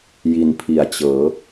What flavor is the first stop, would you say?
aspirated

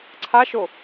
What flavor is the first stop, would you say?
click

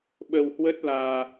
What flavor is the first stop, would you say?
implosive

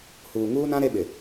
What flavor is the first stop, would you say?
implosive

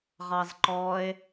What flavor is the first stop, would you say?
click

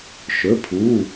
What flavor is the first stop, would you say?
aspirated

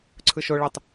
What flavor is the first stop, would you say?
click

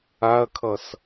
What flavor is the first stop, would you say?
aspirated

